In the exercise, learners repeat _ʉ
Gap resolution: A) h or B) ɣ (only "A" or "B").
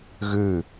B